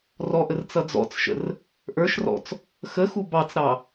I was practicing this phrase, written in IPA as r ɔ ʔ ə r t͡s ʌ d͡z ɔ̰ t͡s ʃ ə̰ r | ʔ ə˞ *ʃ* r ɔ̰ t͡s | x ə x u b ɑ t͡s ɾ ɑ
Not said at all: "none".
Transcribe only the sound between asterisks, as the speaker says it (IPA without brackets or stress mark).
ʃ